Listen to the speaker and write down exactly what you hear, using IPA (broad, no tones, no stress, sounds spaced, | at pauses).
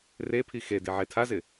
r e pʰ i x e d i ʕ e tʰ a z ɪ